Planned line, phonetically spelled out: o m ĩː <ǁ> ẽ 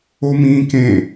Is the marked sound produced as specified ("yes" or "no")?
no